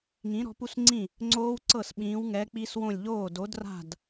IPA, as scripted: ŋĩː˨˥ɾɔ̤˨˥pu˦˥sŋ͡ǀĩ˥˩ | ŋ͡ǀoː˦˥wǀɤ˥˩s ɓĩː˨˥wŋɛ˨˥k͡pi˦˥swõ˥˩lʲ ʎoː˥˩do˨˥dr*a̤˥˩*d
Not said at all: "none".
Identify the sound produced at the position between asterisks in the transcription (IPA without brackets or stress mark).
a̤˥˩